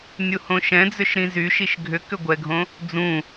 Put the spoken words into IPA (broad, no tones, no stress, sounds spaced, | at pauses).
nʲ u h õ ʃ ɛ̃ d͡z ʏ ʃ ɾ ĩ z y ʃ i ʃ ɡʱ ʏ k ʏ ɡʷ ɛ ɡʱ õ | d͡z ũ